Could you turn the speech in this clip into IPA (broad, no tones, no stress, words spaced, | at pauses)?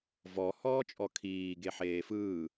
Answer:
vɔ hɔːt͡ʃʼɔkʰiː ɡeħeːfɯː